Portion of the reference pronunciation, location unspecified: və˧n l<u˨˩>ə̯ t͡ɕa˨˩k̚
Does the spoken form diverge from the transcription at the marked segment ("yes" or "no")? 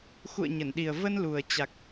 no